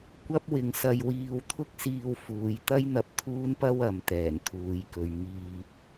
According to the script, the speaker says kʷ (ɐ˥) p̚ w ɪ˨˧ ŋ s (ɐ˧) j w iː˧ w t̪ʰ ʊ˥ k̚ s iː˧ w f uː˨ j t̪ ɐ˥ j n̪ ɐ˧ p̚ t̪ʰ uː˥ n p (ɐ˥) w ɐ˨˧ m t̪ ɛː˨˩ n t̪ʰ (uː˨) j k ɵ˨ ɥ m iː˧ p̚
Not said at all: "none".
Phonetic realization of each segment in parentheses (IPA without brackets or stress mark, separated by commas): ɐ˥, ɐ˧, ɐ˥, uː˨